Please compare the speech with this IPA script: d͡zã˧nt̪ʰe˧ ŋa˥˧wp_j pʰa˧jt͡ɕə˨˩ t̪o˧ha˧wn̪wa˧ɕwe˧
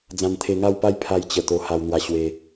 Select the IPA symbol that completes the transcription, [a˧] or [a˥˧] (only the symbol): a˥˧